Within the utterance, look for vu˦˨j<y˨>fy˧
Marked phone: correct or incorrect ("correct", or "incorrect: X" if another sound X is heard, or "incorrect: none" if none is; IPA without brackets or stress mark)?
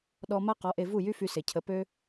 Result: incorrect: y˦